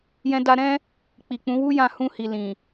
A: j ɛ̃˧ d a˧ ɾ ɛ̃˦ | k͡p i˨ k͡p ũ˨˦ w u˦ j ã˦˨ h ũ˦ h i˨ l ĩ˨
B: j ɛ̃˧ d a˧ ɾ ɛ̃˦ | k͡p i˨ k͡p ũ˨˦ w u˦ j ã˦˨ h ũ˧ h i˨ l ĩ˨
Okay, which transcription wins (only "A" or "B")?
B